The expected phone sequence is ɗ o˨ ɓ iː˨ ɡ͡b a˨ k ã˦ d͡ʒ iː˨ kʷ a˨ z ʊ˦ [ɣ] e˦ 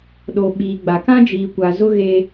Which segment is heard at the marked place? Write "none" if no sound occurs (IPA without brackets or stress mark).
ɣ